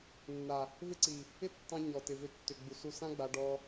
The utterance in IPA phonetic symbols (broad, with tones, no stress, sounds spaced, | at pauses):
nː a˨ | v ɪ˦ ǀ i˨ | ɪ˦ tː ɑ̃˧ ɲ ɔ˨ t ɪ˨ v ʏ˧ tː ʏ˨ ɡ͡b u˨ s u˧ s ã˦ ɡ͡b a˧ ɖ ɔ˧